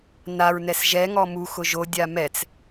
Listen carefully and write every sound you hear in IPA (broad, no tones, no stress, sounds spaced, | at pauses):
n a ɹ n ɛ s ʒ ɛ ŋ ɔ m u x ʊ ʒ o dʲ a m ɛ t͡s